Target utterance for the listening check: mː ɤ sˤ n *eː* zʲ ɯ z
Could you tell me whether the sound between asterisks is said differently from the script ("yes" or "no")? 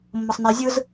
no